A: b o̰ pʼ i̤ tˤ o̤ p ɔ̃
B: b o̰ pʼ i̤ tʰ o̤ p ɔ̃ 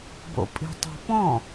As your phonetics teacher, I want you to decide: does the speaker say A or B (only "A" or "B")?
A